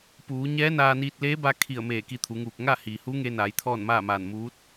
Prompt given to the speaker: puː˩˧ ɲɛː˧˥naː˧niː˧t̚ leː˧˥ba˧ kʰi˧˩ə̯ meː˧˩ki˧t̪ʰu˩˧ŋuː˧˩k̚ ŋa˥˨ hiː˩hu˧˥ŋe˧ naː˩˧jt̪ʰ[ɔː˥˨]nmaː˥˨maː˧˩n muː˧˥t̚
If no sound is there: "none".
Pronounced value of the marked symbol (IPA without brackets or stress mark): ɔː˥˨